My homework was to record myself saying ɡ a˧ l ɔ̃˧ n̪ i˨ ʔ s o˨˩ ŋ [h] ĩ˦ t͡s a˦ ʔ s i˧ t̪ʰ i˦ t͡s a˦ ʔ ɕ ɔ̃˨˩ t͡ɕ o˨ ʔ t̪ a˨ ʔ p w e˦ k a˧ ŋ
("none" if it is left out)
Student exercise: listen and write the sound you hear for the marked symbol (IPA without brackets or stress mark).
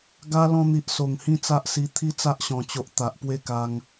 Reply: h